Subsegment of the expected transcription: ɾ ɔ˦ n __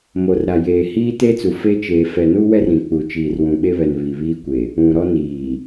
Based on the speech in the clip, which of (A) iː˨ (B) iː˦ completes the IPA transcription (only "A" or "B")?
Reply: A